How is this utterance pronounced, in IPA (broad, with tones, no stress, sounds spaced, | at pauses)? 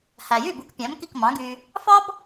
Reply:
h æ˩ j y˥˩ b u˧ k pʲ æ̃˩˥ m k i˥˩ k m ɑ̃˩˥ ɡ y˧ | f ɑ˥ b